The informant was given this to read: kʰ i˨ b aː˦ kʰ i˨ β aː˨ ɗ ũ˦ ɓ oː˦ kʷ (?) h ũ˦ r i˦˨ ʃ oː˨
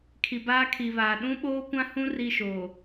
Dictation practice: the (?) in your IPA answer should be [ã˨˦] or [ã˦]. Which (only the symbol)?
ã˦